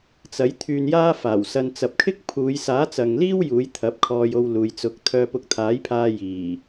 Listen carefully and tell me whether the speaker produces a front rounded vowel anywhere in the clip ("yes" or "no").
yes